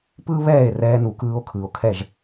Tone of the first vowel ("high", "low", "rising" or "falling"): high